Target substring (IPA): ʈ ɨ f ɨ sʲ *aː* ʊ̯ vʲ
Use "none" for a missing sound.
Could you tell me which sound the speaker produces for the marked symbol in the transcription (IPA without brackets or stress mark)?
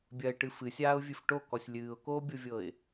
aː